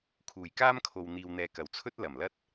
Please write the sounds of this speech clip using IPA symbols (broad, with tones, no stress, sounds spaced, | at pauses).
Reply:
kʰ uː˨˩ j k aː˥ m kʰ o˨ w n̪ iː˨ w n̪ ɛː˨ k ɐ˨˩ w t͡sʰ ɵ˥ t̚ l ɐ˨˩ m l ɐ˥ t̚